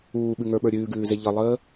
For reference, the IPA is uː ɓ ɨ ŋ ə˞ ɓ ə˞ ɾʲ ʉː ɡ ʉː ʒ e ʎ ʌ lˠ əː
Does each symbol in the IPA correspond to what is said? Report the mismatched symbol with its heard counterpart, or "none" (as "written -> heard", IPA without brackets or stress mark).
ʒ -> z